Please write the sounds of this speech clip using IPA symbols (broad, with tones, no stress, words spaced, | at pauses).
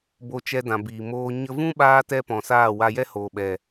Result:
bo˧t͡ʃɛ˧dã˨ biː˨moː˧ ɲə˧ vũ˦ɓaː˧ tɛ˦pɔ̃˨saː˦˨ wa˧ jɛ˦hoː˨ɓɛ˨